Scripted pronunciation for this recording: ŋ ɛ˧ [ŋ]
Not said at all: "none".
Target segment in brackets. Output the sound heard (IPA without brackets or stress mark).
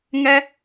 none